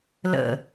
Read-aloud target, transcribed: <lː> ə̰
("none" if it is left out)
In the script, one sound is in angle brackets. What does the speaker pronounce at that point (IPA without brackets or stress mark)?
l